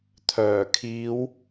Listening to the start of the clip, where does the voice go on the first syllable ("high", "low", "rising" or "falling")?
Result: low